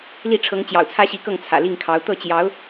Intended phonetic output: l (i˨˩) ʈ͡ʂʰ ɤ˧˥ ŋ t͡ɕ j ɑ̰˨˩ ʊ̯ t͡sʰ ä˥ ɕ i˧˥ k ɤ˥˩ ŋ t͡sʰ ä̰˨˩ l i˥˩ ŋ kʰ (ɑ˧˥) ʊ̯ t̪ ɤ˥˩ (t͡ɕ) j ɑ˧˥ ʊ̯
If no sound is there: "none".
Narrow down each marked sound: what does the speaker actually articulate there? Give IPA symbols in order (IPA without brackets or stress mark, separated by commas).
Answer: i˥˩, ɑ˧˥, t͡ɕ